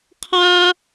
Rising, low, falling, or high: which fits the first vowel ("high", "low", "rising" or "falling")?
high